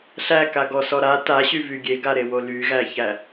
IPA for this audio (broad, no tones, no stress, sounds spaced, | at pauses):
ɬ æ k a ɡ ɔ s ɔ ɾ a t a ɕ y v y ɡʲ e ɡ a ɾ e w o l y ɣ æ ç æ